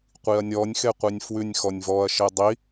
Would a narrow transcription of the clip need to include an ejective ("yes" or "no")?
no